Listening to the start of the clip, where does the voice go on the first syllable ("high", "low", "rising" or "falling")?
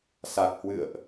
low